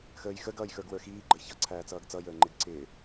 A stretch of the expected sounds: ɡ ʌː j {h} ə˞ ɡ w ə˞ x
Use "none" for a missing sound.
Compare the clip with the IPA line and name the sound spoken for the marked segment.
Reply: x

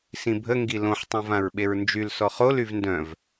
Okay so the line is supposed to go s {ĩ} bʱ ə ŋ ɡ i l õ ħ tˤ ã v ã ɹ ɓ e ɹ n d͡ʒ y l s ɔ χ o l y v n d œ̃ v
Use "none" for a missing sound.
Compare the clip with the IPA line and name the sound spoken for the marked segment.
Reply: ĩ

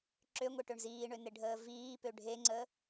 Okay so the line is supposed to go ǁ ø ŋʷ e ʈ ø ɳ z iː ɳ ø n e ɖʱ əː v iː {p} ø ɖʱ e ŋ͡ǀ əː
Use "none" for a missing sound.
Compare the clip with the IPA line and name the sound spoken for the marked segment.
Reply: p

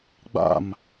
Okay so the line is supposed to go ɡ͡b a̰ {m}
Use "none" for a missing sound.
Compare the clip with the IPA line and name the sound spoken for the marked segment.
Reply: m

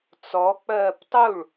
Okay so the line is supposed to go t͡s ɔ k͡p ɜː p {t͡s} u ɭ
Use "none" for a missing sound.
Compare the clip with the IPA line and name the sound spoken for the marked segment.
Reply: tˤ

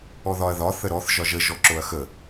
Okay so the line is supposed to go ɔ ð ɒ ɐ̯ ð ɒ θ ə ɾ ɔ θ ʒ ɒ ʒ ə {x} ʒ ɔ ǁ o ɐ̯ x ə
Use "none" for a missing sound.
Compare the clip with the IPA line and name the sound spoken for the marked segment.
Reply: none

